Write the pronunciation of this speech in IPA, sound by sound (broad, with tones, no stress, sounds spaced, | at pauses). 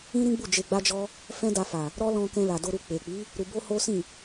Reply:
ĩ˦ ɾ ĩ˦ ɡ͡b u˦˨ d͡ʒ e˧ ɡ͡b a˦ d͡ʒ ɔ˦ | f ɛ̃˦ d a˧ f a˨ | ɾ ɔ˦ l ɔ̃˧ k ɛ̃˧ l a˨ d o˧ ɾ u˧ k͡p e˨ k͡p i˨˦ | ɾ u˧ b o˦ h o˦ s ĩ˦˨